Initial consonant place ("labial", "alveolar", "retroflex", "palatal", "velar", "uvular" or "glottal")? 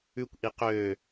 velar